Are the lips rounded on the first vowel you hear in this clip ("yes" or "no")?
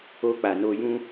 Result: yes